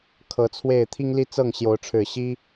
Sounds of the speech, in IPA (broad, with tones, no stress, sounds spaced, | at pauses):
kʰ ɤ˨˦ t͡sʰ w e˥˨ ɪ̯ t̪ʰ i˦ ŋ l i˦ t͡s ɤ˥˨ ŋ ɕ j o˨˦ ʊ̯ ʈ͡ʂʰ ɻ̩˨˩ ɕ i˦